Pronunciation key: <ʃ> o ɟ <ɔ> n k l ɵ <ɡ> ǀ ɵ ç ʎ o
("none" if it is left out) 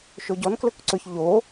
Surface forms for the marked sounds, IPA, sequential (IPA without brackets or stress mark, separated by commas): ʃ, ɔ, k